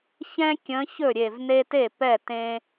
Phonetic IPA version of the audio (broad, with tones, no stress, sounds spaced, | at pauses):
ç ɛ̃˦ kʲ ə̃˨˦ ç ɵ˥˩ ɾʲ e˧˩ v n e˦ t e˥˩ p ɛ˥˩ t ẽ˦